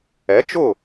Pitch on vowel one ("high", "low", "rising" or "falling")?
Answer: rising